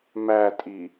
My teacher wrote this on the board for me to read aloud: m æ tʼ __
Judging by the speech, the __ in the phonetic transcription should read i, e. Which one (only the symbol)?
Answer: i